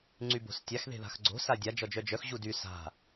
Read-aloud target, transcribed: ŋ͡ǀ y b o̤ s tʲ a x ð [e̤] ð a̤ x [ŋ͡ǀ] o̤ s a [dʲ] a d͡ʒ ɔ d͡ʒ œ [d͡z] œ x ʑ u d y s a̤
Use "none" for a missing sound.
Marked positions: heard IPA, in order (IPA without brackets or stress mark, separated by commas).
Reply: e̤, ɡ͡ǀ, dʲ, d͡ʒ